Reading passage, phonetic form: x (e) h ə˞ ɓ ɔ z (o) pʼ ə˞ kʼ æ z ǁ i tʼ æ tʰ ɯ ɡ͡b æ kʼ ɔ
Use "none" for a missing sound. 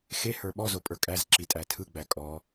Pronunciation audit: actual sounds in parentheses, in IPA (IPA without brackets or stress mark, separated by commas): e, o